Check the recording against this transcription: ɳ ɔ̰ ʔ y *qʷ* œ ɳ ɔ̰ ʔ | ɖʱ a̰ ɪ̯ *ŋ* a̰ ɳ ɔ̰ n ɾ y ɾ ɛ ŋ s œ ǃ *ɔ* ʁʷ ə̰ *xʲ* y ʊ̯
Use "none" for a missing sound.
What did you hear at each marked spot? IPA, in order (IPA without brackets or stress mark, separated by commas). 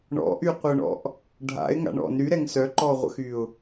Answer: qʷ, ŋ, ɔ, x